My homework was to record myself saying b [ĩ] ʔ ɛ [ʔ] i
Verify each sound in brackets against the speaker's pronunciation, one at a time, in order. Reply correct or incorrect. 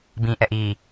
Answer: correct, correct

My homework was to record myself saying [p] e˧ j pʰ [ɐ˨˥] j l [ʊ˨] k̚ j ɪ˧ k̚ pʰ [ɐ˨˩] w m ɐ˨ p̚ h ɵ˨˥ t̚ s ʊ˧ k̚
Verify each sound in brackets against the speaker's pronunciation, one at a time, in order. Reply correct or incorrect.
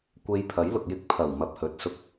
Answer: incorrect, correct, correct, correct

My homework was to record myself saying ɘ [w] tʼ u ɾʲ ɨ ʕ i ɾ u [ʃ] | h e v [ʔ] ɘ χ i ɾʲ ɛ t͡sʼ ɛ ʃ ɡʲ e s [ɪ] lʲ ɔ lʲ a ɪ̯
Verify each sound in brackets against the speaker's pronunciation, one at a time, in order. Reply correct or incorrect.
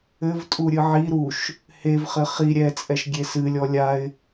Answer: incorrect, correct, incorrect, incorrect

